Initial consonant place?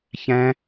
palatal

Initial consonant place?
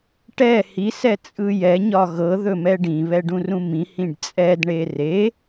retroflex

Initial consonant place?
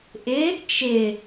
glottal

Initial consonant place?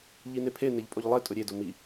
palatal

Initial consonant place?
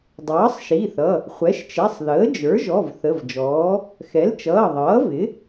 alveolar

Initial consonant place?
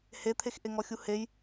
glottal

